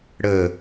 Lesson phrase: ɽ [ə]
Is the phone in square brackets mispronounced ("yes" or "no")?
no